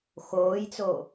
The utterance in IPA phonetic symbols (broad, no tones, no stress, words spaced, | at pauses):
xoːjt͡soː